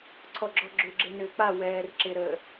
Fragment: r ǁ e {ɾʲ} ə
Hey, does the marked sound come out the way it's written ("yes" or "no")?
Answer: no